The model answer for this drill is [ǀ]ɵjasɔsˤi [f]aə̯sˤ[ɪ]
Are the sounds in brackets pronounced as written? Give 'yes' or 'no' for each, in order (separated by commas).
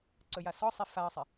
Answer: yes, yes, yes